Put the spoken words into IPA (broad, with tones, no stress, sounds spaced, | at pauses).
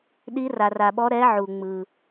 ɗ i˨˦ r a˩ r a˩ ɓ ɔ˨˦ ɾ ɛ˨˦ ʕ u˩ ŋ͡m ɯ˩